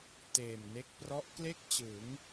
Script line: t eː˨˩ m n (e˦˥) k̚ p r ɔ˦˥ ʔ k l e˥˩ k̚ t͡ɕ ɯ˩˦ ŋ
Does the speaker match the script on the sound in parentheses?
yes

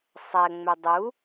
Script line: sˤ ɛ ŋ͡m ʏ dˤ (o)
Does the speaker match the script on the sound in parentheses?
no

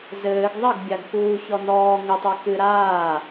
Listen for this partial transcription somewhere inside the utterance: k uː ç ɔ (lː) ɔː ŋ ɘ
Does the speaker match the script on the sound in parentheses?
no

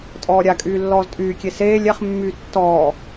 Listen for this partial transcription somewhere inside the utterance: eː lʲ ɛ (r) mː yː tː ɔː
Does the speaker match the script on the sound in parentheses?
no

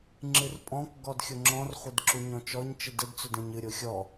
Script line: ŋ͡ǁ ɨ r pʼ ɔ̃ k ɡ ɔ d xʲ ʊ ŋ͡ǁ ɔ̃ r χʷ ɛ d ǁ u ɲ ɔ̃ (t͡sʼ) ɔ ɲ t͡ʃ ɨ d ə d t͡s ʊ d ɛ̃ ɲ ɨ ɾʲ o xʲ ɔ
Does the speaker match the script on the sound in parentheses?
no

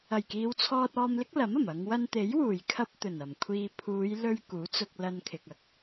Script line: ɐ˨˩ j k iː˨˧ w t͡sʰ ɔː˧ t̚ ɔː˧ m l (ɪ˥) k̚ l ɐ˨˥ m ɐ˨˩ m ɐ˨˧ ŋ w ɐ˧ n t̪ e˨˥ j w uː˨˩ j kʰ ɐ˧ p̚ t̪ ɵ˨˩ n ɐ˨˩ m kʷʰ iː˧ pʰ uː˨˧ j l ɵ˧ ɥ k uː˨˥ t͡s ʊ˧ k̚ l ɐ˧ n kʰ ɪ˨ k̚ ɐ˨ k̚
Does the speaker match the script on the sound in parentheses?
yes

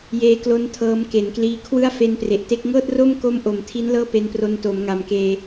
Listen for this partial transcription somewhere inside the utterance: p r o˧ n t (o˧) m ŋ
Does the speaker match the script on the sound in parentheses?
no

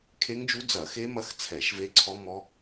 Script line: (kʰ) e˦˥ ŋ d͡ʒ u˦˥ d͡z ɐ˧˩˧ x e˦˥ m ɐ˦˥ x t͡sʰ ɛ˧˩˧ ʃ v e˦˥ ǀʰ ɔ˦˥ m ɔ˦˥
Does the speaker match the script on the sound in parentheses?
yes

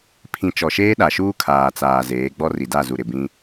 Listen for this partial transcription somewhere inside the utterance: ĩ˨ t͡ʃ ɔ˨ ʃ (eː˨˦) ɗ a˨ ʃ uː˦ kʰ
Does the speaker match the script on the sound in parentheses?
no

